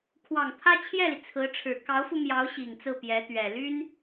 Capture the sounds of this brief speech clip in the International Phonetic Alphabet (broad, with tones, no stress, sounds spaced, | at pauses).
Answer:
kʰ w ɑ˨˩ ŋ t̪ʰ ä˥ t͡ɕʰ j ɛ˥˩ l i˩ t͡sʰ ɹ̩˧˥ ʈ͡ʂʰ ɻ̩˨˩ k ɑ˧˥ ʊ̯ f u˧ m j ɑ˧˥ ʊ̯ ɕ i˨˩ ŋ t͡s ɹ̩˥˩ p j ɛ˧˥ t̪ ɥ ɛ˨˩ l y˥ n